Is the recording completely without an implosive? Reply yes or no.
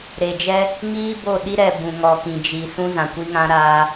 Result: no